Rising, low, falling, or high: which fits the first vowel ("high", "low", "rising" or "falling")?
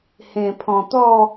low